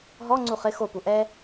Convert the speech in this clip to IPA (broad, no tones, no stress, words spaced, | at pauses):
ɦɔ ŋ͡ǀuχɪ xopu ʔɛ